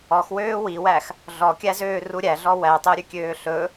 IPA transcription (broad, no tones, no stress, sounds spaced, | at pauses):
ɔ x w øː w i w æ x | ɮ ɔ kʲ æ z øː r u ɾʲ æ ɮ ɔ w æ tˤ o ɾʲ ʉ kʲ øː ɬ ɵ